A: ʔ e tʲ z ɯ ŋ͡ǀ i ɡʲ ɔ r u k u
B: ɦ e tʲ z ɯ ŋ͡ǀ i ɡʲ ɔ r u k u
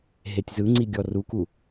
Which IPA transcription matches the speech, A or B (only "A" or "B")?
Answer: B